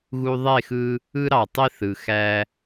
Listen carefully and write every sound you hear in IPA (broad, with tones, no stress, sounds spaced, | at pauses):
ɣ u˧ ðˤ e˦˨ x ɯ˧ | ɯ˦ ɾ ɑ˨ tˤ i˦ θ ɯ˨ x æ˦